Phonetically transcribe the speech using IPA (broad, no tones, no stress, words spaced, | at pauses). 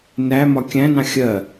næmɒ kʲæ̃nɑ̃ xʲɜ